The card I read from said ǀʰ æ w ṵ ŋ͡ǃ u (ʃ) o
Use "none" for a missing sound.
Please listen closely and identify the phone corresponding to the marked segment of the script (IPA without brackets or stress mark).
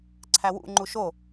ʃ